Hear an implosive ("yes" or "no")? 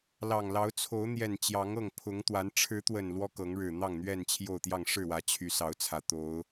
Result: no